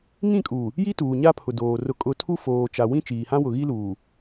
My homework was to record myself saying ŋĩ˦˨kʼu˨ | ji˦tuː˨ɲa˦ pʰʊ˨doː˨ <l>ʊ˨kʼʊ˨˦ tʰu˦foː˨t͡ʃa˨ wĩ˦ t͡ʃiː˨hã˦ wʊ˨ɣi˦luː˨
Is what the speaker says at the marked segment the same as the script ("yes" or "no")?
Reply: no